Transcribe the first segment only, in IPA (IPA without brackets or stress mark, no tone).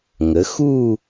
ŋ